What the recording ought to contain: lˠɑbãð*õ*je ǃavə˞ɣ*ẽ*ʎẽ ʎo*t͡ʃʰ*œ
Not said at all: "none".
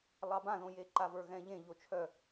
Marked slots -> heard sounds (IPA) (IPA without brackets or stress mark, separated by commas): õ, ɛ̃, t͡ʃʰ